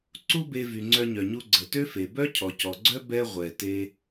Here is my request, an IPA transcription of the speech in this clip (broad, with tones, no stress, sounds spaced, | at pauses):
ǀ u˥ b e˧ v y˩ ŋ͡ǀ œ˧ ɲ œ˩ ɲ u˧ ɡ͡ǀ ə˩ t ø˥ f e˩ b œ˥ cʰ ɔ˩ c ɔ˩ ɡ͡ǀ œ˥ b ɛ˥ ʁʷ ɛ˩ t e˧